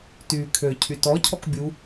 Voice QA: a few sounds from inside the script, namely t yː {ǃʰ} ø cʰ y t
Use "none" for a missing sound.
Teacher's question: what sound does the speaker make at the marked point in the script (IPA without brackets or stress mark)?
kʰ